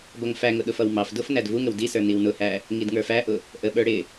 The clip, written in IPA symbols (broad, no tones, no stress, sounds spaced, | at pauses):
b ʌ ŋ f æ ŋ ʊ ɗ ʊ f ʌ w m ɑ f d ʊ f n æ d v u ŋ ə w d i s ə˞ n i w n ʊ h æ | ŋ i d ŋ ə˞ f æ ʔ ʊ | ʔ ə ɓ ə˞ ɽ ɪ